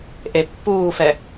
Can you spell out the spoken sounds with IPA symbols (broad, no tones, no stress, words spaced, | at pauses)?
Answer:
ʔepːuːfɛ